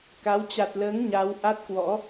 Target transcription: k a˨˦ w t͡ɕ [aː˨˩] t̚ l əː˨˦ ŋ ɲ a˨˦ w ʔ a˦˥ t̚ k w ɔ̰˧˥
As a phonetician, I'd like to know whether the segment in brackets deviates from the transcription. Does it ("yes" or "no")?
yes